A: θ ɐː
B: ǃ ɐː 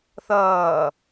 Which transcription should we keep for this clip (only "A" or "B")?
A